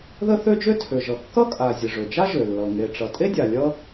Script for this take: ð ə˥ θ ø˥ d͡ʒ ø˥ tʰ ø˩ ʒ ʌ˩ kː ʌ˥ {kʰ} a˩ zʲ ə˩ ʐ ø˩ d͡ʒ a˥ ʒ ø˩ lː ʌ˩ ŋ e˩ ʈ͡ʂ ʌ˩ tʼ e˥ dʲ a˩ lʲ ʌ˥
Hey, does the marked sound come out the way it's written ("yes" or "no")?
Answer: no